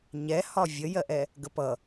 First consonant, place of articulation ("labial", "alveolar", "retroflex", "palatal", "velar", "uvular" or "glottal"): palatal